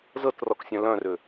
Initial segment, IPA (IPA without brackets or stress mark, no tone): z